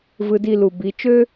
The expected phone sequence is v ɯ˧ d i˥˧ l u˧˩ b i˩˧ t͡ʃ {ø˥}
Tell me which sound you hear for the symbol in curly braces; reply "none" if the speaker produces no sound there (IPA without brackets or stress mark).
ø˥